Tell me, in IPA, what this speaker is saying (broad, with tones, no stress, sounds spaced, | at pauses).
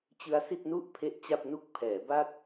t͡ɕ ɯ˦˥ a̯ s i˥˩ t̚ n u˥˩ ʔ pʰ e˦˥ ʔ t͡ɕ a˥˩ p̚ n u˥˩ k̚ pʰ ɛː˩˦ b a˥˩ t̚